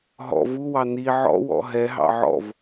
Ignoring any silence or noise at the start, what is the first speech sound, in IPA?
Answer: ɦ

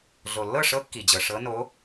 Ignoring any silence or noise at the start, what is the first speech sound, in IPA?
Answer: ɮ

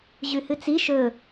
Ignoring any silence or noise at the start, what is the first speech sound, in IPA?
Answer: ʑ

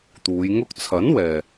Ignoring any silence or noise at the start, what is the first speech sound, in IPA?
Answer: t̪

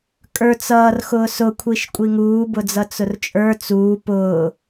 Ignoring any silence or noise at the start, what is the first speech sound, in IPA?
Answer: kʼ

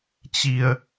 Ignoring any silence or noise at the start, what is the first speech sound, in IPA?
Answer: t͡ɕ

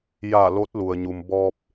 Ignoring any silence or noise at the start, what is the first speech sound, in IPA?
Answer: j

